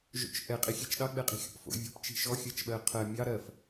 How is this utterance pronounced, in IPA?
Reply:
ʒ o̰ t͡ʃ ʔ ɛ qʼ i xʲ ɛ t͡ʃ ɗ ɑ ɡ͡b ɛ qʼ i̤ xʲ ɔ̰ p f o̰ vʲ ɔ̤ p t͡ʃ i̤ ʃ ɔ xʲ ɜ t͡ʃ ɓ ɜ qʰ ɜ mʲ ɑ ɾ ɜ f

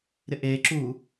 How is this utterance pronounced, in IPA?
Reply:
ɾ ɪ ʔ eː ǁ uː

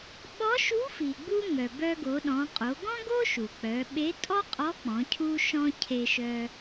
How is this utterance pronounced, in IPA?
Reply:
ɓ ɔ˧˥ ʃ u˧˥ f i˩ ɡ͡b u˧ ŋ œ˩ b œ˧ ɡ o˩˧ ɗ ɔ̃˩˧ qʼ o˩˧ ɡ ɔ̃˥ ɡ o˥ ʃ u˩ k͡p œ˩˧ ɓ e˧˥ tʼ ɔ˥ qʼ ɔ˧˥ k͡p ɔ̃˩˧ cʰ u˧ ʃ ɔ̃˧ cʰ e˧ ʃ œ˧

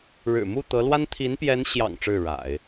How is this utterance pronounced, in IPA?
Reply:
ɻ ɻ̩˨˩ m u˥˩ t̪ ɤ˧˥ l w a˥ n t̪ʰ i˧˥ n p j ɛ˧˥ n ɕ j ɑ̰˨˩ ŋ ʈ͡ʂ ɻ̩˥˩ ɻ a̰˨˩˦ ɪ̯

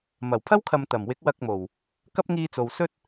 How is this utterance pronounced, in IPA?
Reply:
m ɐ˨˩ w pʰ ɐ˥ w kʰ ɐ˨ m t̪ ɐ˨˩ m w ɪ˨˥ k̚ w ɐ˧ k̚ m o˨˩ w | k ɐ˥ p̚ ŋ iː˧ t͡s o˨ w s ɵ˥ t̚

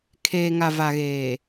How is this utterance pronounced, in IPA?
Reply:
kʰ eː˨ ŋ a˨ v a˨ ɣ eː˨

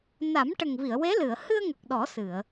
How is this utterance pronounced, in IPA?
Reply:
n a˨˩˦ m ʈ ə˨˩ ŋ v i˨˩˨ ə̯ w e˧˥ l ɨ˨˩˨ ə̯ h ɨ˧ ə̯ ŋ ə˨˩ k̚ ɗ ɔ˨˩˦ s ɨ˨˩˨ ə̯

